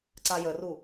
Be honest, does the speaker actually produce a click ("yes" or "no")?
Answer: yes